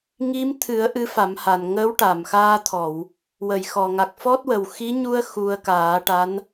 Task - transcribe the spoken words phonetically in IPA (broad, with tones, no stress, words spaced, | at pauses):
ŋi˧˥mt̪ʰɨ˨˩˦ə̯ ʔɨ˧˥fa˨˩˦mha˨˩n ŋəː˧˥wʈa˨˩˨mxaː˧t̪ʰɔ˨˩˨w | wə˨˩˨j xɔ˨˩ŋa˨˩k̚fɔ˦˥t̚wə˨˩w xi˧˥ɲu˧ə̯ xu˧ə̯kaː˨˩˦ʈa˧˥n